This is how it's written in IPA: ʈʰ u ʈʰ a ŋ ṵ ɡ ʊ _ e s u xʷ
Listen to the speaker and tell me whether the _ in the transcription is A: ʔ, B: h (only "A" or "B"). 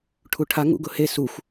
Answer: B